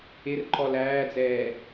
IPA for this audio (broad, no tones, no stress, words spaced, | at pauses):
ɪrǃɔl æːd͡zɛː